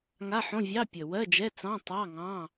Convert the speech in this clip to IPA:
ŋ a˧˥˧ ħ õ˧˥˧ vʲ ɑ˧˥˧ pʲ ə˨˩ w ɜ˧˥˧ d͡ʒ ɛ˧˥˧ t͡s ɑ̃˧˥˧ tˤ ɑ˧˥˧ ŋ ɑ̃˧˥˧

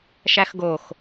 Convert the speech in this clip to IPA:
ʃ æ x ɡ o x

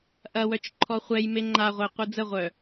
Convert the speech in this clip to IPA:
ʔ ɐ w œ t͡ʃ ǃʰ ɔ χʷ ɛ j m e ŋ͡ǃ a ʁʷ ɛ qʷ i d͡z ə ʁʷ œ

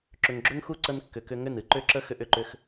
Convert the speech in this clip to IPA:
ǁ ʏ˨ ŋ ɡ͡ǁ ʏ˦ ŋ x u˦ ǀ ə˧ n kː ʏ˨ k ʏ˧ ŋ ʏ˦˨ n ɨ˨ ǃ ʏ˦˨ ǁ ə˦ x ʏ˧ ʔ ʏ˧ ǃ ʏ˧ x

